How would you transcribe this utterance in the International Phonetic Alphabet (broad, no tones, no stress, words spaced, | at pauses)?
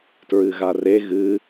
tɹɨɣare ɣɨ